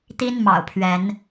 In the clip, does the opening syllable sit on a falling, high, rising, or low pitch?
high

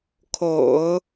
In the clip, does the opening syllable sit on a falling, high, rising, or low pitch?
low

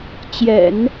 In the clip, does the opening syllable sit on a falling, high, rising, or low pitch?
low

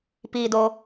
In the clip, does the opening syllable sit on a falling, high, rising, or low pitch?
low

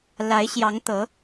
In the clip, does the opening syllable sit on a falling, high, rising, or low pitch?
rising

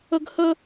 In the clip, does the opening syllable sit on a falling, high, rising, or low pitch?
high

